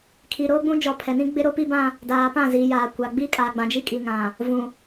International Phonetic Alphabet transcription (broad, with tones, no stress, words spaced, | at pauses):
kʰi˨ɾoː˦ɡ͡bũ˦d͡ʒɔ˨ pʰɛ˨nĩ˦ɡ͡bɪ˦ ɾo˦pi˦bã˦ | daː˨pã˦˨ ziː˨jaː˨kʷa˨ ɡ͡biː˦kʼaː˨ɡ͡bã˨ d͡ʒi˦kʼi˨ ŋã˨ | vũ˨